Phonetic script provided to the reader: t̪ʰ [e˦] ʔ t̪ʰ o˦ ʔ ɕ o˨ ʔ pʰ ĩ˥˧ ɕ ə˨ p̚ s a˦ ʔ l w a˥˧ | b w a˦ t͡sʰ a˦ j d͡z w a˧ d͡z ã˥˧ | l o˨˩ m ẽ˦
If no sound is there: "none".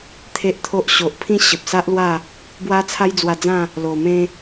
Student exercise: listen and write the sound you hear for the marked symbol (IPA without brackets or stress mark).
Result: e˦